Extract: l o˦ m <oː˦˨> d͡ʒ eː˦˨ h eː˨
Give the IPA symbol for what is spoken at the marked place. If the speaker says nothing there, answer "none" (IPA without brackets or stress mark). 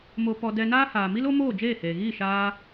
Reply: oː˦˨